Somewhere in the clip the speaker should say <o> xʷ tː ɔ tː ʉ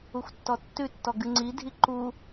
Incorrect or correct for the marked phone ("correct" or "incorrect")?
incorrect